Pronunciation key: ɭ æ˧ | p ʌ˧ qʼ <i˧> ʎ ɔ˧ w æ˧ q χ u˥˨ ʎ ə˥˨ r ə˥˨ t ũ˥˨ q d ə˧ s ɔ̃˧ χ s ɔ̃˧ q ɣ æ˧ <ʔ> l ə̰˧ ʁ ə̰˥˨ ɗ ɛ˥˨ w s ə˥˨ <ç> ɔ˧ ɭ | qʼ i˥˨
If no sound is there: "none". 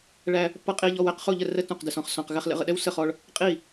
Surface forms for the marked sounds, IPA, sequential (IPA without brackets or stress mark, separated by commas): i˧, χ, χ